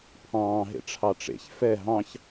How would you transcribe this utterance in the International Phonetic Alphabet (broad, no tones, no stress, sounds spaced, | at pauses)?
pʰ ɑ̃ː ɦ ḛ ʈ͡ʂʰ ɑ ʈ͡ʂ ḛ ç f ɛ ɦ ɑ̃ ç